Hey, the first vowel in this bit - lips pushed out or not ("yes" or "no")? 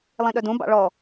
no